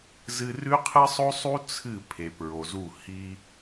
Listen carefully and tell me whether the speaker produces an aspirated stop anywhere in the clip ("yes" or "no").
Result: yes